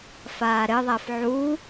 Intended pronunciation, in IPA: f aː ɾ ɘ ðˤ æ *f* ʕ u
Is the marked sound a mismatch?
no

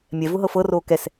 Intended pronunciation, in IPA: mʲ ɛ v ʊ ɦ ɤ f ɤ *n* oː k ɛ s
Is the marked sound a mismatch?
yes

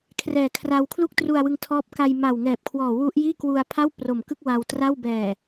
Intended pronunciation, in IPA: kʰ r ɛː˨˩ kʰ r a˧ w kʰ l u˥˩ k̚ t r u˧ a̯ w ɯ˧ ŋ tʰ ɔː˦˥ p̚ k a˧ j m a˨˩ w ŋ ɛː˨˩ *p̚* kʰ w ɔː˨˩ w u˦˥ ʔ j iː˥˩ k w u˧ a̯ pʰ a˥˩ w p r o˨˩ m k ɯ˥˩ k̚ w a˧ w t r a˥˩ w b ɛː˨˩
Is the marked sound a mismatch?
no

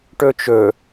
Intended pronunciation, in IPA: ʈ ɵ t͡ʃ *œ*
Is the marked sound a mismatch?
yes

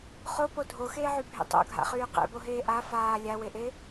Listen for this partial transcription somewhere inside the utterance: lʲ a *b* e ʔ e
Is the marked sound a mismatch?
yes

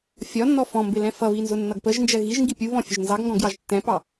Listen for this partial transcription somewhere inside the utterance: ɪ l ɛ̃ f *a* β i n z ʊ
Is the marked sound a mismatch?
yes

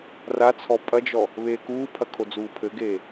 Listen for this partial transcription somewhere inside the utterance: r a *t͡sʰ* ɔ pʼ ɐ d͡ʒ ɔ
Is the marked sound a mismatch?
no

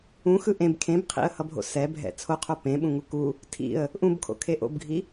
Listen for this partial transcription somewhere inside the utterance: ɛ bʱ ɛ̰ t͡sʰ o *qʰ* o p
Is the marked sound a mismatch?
no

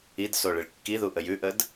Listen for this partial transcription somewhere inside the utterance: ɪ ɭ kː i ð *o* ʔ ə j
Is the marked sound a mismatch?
yes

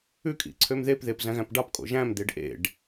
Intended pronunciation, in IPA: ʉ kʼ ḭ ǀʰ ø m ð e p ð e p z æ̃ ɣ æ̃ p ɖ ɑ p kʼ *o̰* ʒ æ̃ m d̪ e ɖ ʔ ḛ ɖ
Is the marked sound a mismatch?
no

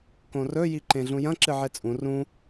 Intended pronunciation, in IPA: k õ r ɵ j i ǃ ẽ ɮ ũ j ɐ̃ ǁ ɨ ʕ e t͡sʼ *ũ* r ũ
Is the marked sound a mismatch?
no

